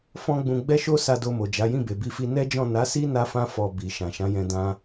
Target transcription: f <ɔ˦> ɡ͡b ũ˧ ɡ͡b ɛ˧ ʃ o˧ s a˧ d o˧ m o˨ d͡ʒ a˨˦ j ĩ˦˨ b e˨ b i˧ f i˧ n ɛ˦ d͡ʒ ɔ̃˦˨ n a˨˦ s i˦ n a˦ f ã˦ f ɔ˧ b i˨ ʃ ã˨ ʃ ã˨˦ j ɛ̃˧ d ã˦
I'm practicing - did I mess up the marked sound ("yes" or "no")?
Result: yes